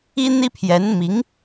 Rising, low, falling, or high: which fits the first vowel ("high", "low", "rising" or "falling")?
high